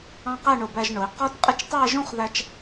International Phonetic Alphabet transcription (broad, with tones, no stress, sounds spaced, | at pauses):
ɑ̃˥ q æ˥˧ ɳ ʊ˧˩ b æ˧ ʒ ɳ ʊ˩˧ i̯ q ɔ˥ t qʼ ɪ˥ t͡ʃ tˤ æ˥˧ ʒ ũ˥˧ χ ð æ˧ t͡ʃ